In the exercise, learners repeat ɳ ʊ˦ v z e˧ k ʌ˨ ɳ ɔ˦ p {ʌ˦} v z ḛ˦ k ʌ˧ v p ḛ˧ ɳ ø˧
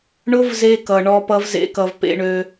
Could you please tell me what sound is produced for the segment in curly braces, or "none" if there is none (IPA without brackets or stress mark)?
ʌ˦